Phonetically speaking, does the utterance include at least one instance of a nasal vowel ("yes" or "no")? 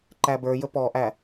no